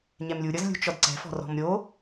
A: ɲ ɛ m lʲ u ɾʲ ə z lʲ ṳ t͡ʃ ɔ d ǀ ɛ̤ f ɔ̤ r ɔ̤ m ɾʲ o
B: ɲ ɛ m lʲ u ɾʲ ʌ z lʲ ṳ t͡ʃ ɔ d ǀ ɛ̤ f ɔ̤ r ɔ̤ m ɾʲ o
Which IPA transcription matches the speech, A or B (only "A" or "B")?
B